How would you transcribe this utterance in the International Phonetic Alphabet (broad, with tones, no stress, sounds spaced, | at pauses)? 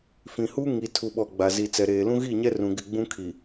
f ĩ˨ h u˦ ŋ i˨ tʰ u˨ ɓ ɔ˨ ɡ͡b a˨ z i˨ t͡s ɛ˨ ɾ eː˨ l ũ˦ ɣ i˦˨ ɲ ɛ˦ r ũ˨ ɡ ɪ˦˨ ɡ͡b ũ˦ kʰ i˨